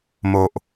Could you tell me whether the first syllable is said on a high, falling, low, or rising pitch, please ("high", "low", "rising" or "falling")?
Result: low